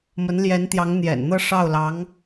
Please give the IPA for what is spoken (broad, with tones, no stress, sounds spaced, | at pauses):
m ə˧˥ n l j ɛ˧˥ n t̪ j ɑ˧˥ ŋ n̪ j ɛ̰˨˩ n n̪ ɤ˥˧ ʂ ɑ˥˩ ʊ̯ l ɑ˧˥ ŋ